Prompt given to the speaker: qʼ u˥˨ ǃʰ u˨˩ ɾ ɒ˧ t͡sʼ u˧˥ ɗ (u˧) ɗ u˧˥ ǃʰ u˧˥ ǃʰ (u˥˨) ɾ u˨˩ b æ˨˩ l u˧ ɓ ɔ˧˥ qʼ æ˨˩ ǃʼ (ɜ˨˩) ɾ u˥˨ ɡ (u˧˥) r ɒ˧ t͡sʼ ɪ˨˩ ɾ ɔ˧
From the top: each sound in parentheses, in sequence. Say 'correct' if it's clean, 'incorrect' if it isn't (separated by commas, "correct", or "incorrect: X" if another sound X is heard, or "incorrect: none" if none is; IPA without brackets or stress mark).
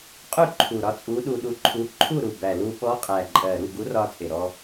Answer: correct, correct, correct, correct